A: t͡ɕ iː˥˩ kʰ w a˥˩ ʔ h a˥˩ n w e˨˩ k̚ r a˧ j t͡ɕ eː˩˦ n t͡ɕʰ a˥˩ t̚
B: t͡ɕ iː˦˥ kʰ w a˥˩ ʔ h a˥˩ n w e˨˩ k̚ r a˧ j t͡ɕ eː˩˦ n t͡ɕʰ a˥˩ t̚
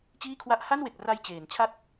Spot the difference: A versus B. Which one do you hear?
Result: A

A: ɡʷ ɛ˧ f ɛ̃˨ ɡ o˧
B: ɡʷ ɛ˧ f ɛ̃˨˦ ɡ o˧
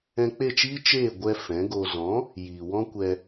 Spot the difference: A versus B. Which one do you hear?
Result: B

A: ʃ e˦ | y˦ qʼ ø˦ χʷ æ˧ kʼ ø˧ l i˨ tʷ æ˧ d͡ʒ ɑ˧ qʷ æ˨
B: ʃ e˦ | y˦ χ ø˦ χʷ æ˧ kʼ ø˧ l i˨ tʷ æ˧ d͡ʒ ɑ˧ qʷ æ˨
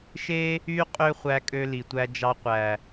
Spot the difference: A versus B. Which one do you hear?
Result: A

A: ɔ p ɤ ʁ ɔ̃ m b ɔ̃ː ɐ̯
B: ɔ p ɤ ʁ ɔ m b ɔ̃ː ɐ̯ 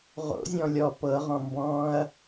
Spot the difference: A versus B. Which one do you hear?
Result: A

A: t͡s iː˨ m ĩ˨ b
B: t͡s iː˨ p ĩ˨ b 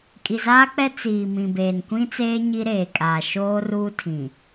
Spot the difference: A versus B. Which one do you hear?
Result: A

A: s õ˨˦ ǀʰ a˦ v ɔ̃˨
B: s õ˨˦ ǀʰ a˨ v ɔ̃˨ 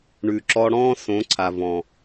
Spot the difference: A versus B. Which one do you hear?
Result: B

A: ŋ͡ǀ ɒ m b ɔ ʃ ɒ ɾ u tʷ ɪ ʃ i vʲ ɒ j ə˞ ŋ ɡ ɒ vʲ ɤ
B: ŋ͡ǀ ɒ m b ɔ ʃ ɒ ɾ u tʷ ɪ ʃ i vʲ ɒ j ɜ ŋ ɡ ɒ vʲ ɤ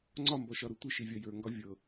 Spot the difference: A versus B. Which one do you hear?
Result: A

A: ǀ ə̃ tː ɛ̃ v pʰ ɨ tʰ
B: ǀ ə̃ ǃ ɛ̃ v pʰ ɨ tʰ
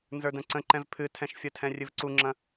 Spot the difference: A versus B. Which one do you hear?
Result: B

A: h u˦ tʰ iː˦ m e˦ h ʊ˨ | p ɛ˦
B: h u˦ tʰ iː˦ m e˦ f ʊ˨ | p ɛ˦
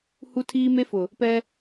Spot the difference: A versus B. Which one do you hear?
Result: B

